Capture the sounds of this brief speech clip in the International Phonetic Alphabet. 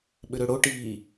ɓʏɾøɽo ʈiː

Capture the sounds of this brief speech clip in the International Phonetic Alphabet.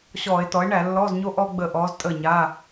ɕɔː˧˩˧e̯tɔ˩˥e̯ɳæ˧˩˧ lːɔː˧˥˧zɲo˥ ʔɔː˥ɡ͡bəː˦˨ʔɔː˧˥z tʼəː˦˨ɲaː˧˥˧

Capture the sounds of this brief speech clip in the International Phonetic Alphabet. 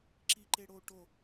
ǁiǃeɽo ʈo

